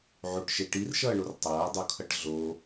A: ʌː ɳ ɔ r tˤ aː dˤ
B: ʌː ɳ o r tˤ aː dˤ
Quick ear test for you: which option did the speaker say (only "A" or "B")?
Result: B